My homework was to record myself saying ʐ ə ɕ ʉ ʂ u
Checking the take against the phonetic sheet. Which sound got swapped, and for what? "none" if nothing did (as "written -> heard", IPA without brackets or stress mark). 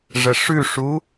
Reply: ɕ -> ʂ